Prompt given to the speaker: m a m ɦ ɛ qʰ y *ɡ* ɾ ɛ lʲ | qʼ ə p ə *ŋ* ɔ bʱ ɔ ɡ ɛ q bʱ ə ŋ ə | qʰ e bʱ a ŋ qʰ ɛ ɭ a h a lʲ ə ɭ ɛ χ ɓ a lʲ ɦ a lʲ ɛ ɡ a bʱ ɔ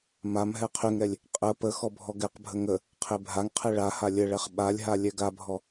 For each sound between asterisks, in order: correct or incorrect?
incorrect, incorrect

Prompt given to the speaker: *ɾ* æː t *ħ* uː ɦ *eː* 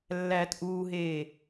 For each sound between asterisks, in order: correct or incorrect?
incorrect, incorrect, correct

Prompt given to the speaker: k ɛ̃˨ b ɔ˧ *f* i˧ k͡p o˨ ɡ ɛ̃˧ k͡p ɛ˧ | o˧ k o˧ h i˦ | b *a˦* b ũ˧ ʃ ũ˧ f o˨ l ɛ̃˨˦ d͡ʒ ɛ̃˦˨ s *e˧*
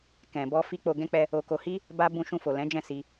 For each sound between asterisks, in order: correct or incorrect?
correct, correct, incorrect

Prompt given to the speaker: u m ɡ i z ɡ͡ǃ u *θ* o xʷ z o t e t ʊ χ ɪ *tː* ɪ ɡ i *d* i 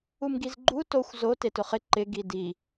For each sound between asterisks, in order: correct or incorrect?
incorrect, incorrect, correct

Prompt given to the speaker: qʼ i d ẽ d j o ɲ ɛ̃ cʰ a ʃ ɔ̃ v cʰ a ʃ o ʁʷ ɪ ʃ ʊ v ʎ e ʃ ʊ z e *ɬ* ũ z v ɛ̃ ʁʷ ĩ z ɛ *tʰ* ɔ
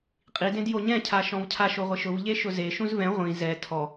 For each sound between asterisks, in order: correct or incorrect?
incorrect, correct

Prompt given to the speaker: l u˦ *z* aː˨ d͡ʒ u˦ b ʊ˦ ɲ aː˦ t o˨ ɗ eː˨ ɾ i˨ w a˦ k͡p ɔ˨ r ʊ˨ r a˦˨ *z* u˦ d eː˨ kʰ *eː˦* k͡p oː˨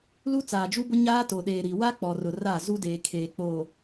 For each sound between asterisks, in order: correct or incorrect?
incorrect, correct, incorrect

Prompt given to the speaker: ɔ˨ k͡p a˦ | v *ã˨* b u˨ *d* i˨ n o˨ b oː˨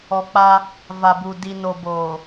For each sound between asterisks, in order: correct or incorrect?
incorrect, correct

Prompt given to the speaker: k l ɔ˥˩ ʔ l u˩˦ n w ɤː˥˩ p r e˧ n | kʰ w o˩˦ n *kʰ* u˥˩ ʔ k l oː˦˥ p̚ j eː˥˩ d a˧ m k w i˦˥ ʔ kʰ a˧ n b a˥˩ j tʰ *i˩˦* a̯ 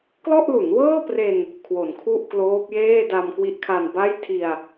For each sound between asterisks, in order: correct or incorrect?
correct, incorrect

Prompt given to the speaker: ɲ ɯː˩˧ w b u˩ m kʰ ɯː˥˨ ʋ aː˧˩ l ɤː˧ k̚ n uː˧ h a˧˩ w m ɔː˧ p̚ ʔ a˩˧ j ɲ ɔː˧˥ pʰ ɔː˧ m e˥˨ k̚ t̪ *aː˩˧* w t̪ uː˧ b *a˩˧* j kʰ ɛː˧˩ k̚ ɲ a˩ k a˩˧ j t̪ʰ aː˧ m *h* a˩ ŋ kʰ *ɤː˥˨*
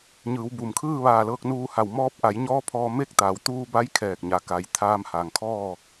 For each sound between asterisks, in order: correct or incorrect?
correct, incorrect, correct, incorrect

